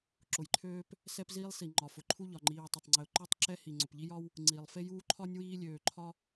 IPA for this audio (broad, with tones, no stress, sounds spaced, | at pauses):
ǁ ʊ˩ j ǃʰ øː˥ p | s ɛ˥ p z iː˥ lˠ s i˩ ŋ͡ǃ ɒ˩ f ʊ˩ ǃʰ u˥ ʎ ɒ˩ ŋ͡ǃ iː˩ w tˤ ʊ˩ tˤ ŋ͡ǀ ɪ˩ ʊ̯ ǃ ø˥ tˤ ǁ ɛ˥ h i˩ ŋ͡ǀ ʊ˩ p ʎ i˥ j ɒ˥ w | ŋ͡ǀ iː˩ lˠ f e˥ j uː˥ ǃʰ ɒ˥ nʲ w iː˥ lʲ øː˩ ǃʰ ɒ˥